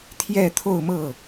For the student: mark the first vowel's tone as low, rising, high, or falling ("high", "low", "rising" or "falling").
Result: falling